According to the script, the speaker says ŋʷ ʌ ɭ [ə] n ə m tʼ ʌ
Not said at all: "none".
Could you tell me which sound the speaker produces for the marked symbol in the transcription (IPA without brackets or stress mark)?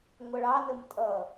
ɑ